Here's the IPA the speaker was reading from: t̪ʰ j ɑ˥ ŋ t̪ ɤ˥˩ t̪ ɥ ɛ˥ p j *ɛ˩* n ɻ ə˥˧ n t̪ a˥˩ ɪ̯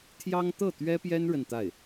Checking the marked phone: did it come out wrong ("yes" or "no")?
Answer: yes